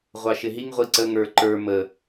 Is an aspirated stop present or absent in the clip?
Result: absent